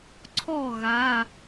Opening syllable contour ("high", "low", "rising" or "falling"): falling